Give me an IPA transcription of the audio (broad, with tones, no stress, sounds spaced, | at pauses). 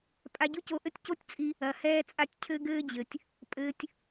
pʼ a˧ ɟ u˦ c o˧ ʔ ɘ˦ tʲ c o˦ tʲ t͡sʼ i˧ | ɐ˨ h ɛː˧ t͡sʼ a˧ tʲ cʰ ɘ˧ ɡ ɘː˧ d͡ʑ ɘ˨ tʲ | pʼ ɘː˧ tʲ